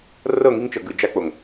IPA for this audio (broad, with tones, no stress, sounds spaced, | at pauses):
r ɤ˦˨ ŋ i˦ ŋ t͡ʃ ɤ˨ ɡ ɯ˨ d͡ʒ a˦ k͡p o˨ ŋ